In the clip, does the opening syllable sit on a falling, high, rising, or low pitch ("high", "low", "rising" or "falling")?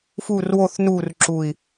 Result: falling